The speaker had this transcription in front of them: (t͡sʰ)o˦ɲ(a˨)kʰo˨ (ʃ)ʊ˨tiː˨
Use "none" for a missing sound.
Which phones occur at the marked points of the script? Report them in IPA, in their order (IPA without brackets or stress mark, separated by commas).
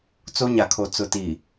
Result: t͡s, a˨, t͡s